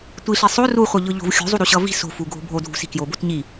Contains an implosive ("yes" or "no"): no